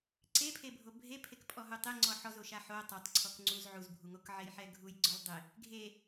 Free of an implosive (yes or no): yes